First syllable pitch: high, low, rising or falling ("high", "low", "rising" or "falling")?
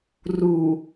low